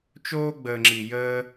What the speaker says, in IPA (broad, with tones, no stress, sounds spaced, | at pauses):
t͡ʃ oː˧ ɡ͡b əː˨ ŋ͡ǁ i˨ j əː˧